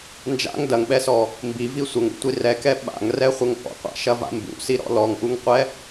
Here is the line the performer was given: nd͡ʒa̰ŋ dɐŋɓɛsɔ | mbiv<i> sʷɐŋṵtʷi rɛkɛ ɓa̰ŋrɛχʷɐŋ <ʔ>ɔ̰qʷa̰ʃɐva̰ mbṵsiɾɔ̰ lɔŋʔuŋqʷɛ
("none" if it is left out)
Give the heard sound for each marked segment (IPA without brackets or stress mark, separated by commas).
i, ʔ